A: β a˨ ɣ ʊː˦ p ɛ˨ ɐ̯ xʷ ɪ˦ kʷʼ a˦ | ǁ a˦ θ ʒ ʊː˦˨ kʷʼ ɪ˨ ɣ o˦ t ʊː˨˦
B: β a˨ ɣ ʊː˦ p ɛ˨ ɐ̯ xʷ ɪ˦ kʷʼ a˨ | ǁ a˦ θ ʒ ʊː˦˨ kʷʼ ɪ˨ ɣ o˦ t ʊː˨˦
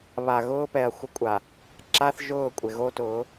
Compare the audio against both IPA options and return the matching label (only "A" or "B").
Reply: B